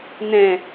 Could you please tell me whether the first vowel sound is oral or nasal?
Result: nasal